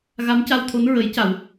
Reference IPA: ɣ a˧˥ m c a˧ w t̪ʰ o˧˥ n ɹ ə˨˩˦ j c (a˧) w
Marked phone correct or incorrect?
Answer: incorrect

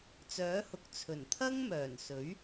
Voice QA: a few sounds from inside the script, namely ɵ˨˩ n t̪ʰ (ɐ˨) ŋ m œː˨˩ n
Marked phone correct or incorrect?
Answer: incorrect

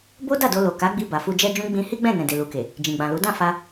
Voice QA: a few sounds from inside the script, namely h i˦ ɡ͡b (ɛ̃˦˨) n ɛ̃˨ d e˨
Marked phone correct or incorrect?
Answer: correct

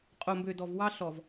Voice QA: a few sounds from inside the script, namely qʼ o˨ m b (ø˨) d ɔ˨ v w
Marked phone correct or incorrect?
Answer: correct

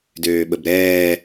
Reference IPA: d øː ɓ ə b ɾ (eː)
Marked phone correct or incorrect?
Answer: incorrect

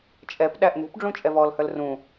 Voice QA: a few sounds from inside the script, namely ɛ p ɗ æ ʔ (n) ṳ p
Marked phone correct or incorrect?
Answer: correct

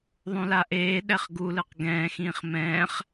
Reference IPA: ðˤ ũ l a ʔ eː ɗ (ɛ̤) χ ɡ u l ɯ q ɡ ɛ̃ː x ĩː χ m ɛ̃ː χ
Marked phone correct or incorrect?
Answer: incorrect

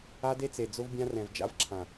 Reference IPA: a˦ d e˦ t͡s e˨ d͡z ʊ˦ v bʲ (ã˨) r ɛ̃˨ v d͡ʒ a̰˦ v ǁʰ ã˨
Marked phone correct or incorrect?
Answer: incorrect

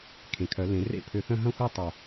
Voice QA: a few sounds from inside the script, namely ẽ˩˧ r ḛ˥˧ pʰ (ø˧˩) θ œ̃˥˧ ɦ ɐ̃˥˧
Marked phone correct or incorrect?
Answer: correct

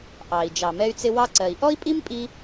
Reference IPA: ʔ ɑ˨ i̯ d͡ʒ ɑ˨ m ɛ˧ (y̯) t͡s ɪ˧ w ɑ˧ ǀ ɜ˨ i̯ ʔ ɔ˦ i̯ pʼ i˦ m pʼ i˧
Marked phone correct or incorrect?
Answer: correct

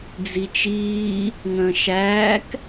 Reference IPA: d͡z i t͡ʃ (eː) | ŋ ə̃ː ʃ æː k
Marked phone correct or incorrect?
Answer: incorrect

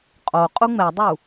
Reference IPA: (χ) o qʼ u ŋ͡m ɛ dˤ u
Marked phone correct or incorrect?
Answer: incorrect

